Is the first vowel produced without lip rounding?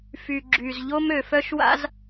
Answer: no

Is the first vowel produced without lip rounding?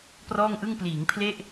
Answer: no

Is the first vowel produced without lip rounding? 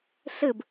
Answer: yes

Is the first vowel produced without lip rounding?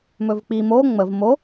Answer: no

